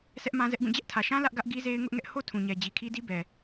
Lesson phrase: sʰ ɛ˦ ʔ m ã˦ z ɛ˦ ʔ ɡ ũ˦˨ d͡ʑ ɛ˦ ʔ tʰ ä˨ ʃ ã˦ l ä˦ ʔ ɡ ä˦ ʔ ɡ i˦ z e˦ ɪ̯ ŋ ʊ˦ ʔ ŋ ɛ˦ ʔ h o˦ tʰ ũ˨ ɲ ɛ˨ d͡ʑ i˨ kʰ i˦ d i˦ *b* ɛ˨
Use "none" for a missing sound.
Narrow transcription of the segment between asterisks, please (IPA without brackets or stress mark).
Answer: b